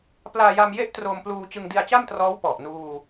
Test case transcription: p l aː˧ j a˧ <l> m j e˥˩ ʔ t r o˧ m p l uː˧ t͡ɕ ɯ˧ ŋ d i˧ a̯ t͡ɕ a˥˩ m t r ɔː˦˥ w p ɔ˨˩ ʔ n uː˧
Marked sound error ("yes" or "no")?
yes